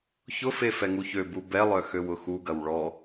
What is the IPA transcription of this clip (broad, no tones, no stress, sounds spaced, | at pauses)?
ç ʊ f e f ɛ ŋ u ç ø b u b ɛ lˠ œ x ø w ʊ x u ɡ ɐ w ɭ ɔ